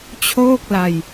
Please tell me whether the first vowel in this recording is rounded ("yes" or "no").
yes